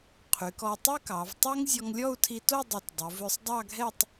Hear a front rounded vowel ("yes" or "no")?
yes